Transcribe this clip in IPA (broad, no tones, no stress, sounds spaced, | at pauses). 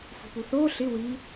f ṳ p u θ oː ɬ ɪ w i